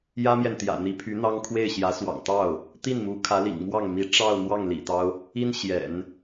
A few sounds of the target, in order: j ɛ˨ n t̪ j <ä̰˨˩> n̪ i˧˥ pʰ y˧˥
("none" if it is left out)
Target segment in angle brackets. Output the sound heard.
ä̰˨˩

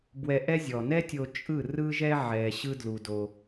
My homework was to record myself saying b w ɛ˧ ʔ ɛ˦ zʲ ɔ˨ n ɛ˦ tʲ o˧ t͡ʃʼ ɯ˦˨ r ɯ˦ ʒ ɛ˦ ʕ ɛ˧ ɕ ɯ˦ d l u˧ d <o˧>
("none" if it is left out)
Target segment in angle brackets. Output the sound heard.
o˧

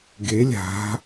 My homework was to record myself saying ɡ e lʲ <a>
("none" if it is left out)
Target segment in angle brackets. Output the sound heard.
a̤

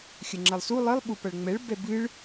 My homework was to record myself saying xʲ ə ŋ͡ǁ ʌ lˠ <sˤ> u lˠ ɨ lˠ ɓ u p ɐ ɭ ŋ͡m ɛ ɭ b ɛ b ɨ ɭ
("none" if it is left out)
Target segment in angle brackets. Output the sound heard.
s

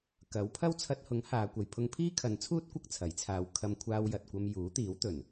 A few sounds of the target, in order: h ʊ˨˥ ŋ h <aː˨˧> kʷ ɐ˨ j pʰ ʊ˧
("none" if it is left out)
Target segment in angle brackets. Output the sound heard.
aː˨˧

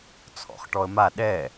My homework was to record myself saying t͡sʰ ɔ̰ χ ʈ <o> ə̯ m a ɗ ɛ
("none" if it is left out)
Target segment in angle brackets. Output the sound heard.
ɔ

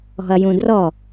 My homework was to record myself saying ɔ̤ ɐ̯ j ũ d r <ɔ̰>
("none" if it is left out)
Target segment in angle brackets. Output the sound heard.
ɔ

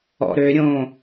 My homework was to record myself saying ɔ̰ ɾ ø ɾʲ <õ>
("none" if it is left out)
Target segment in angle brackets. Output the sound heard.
õ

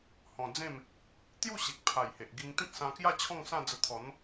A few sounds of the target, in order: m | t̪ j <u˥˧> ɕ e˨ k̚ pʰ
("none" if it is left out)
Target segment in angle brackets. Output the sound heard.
u˥˧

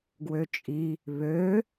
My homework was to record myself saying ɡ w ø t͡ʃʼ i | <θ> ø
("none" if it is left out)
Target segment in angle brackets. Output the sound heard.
β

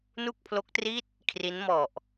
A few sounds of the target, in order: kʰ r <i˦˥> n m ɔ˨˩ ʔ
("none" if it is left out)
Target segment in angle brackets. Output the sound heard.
i˦˥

